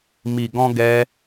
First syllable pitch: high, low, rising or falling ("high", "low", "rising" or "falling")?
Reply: low